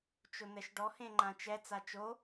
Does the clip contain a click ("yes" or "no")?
yes